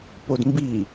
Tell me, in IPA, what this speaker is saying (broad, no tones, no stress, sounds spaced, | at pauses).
p o d m b i